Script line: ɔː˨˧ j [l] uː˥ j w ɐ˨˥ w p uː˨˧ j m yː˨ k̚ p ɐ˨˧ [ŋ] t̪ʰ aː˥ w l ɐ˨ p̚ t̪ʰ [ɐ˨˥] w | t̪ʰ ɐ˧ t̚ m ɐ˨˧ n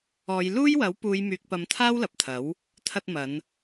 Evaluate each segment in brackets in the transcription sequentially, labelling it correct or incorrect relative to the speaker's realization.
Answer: correct, incorrect, correct

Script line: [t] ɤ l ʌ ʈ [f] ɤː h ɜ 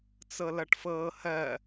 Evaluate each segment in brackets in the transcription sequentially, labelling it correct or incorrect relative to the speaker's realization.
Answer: incorrect, correct

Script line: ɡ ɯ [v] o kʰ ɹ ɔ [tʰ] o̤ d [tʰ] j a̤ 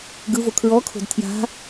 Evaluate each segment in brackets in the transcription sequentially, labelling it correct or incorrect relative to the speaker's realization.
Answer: correct, incorrect, correct

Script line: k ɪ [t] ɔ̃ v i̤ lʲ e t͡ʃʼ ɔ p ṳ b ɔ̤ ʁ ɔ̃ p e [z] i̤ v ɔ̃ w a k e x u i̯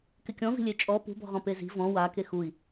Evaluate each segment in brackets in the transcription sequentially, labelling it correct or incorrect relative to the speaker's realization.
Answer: incorrect, correct

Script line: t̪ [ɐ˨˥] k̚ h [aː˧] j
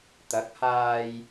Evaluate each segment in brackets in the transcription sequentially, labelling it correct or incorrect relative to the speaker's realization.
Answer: correct, correct

